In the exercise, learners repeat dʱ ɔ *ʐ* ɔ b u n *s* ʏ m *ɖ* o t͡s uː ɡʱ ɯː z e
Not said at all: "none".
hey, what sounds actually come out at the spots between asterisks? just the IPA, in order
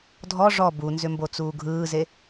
ʐ, z, b

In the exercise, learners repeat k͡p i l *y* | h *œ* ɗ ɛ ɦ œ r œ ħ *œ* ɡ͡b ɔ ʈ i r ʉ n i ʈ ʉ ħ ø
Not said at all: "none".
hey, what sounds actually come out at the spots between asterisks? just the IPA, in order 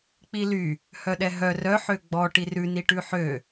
y, œ, ø

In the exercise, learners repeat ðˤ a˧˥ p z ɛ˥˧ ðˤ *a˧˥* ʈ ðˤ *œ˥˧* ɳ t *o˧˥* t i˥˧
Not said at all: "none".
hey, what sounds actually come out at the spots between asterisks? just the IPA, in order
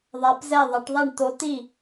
a˧˥, ɛ˥˧, o˧˥

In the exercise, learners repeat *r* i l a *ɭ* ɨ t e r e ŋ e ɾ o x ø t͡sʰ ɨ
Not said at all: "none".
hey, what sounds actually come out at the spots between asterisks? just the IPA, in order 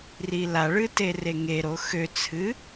r, ɭ

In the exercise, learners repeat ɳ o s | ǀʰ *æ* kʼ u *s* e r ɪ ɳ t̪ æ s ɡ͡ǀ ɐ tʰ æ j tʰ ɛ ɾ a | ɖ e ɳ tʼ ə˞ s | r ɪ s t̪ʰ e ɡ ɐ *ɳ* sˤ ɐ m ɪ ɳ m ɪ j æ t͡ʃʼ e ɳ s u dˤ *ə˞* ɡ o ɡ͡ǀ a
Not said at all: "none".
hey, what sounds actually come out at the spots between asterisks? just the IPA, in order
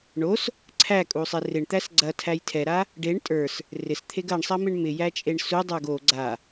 æ, sˤ, ɳ, ə˞

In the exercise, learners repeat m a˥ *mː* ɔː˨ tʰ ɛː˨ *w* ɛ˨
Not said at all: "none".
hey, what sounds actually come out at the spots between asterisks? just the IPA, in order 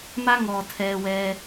ŋ, w

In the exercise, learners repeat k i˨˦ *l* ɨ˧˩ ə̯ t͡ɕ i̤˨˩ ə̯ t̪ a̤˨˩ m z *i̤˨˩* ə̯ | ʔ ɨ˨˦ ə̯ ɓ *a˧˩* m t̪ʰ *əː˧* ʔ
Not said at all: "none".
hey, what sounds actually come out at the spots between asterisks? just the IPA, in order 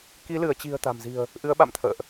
l, i̤˨˩, a̰˧˨, ə̰ː˧˨

